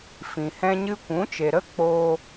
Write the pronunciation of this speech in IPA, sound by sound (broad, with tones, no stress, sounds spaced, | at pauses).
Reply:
f ĩ˨ h ɛ̃˦ ɲ ɨ˦ kʷ ũ˨˦ t͡ʃ e˨ ɾ ə˦ k͡p oː˧